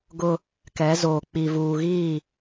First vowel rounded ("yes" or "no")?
yes